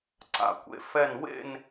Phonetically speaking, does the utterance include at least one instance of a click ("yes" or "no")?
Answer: yes